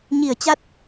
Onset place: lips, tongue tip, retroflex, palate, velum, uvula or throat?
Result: palate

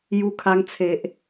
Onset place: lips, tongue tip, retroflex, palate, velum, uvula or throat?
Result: palate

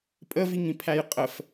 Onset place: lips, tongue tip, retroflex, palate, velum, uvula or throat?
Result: lips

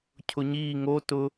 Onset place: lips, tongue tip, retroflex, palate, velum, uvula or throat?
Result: palate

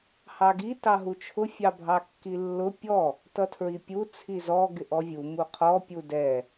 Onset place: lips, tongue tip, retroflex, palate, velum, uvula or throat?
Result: throat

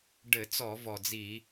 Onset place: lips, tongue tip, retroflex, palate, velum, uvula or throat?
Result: retroflex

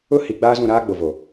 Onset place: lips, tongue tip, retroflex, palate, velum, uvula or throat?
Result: throat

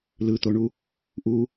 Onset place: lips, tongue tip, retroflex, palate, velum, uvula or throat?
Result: tongue tip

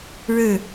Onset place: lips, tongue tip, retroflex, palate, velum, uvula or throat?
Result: retroflex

